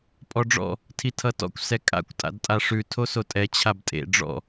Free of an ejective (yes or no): no